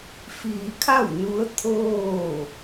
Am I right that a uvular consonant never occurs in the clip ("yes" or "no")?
yes